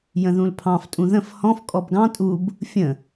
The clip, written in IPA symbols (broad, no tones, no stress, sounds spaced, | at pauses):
j ə̃ ð ũ l pʰ ɑ̃ f tʼ ũ ð ə̃ f h ɔ̃ f kʼ ɔ b ɡ ɑ̃ tʼ u b | fʲ ə̃